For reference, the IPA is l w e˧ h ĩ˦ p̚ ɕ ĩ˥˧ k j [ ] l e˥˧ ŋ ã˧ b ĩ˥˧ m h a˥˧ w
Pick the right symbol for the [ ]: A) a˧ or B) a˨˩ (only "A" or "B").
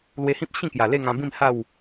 B